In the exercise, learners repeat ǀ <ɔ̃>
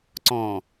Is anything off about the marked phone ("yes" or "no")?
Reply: no